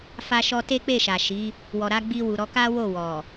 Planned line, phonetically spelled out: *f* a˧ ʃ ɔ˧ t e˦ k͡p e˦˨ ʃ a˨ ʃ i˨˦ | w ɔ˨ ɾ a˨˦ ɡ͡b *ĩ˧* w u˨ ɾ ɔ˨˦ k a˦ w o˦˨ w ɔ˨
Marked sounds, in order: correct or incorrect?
correct, incorrect: i˧

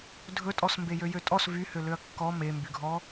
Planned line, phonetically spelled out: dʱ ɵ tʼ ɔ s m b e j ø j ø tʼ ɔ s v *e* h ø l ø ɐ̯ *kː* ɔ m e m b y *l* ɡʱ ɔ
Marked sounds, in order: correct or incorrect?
incorrect: y, correct, incorrect: none

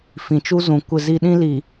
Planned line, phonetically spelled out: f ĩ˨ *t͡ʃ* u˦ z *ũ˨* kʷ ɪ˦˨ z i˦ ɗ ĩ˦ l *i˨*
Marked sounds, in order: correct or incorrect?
correct, correct, correct

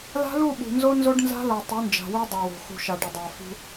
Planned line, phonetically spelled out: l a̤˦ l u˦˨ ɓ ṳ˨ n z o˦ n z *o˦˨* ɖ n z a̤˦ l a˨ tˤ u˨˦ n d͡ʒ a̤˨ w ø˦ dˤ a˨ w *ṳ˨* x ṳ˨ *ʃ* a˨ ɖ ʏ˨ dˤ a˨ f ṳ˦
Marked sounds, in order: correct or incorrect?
incorrect: o˦, incorrect: o̤˨, correct

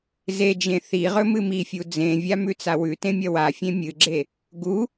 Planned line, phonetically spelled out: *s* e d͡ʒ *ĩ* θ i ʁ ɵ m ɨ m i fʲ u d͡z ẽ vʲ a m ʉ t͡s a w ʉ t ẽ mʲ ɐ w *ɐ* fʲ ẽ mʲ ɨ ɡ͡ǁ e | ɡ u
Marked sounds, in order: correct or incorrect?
incorrect: z, incorrect: ẽ, incorrect: a

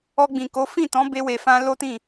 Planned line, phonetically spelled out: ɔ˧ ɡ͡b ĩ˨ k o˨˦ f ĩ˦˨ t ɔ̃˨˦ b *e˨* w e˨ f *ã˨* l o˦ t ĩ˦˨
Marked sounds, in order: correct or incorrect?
incorrect: e˧, incorrect: ã˧

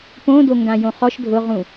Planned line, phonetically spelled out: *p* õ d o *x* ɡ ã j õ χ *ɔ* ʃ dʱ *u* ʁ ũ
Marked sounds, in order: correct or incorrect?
correct, incorrect: ŋ, correct, incorrect: ʊ

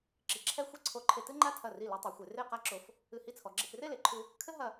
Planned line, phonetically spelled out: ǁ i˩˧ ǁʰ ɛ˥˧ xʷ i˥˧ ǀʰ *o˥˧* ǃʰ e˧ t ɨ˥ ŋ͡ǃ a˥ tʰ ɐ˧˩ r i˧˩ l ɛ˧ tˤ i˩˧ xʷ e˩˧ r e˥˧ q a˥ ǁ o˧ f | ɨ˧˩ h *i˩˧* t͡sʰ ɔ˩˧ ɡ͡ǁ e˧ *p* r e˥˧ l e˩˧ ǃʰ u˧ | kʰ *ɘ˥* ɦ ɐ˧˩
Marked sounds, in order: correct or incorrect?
incorrect: o˧˩, incorrect: i˥˧, correct, correct

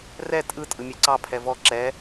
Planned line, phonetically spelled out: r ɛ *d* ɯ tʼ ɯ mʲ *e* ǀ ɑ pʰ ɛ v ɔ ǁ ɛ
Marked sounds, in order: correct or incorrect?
incorrect: tʼ, correct

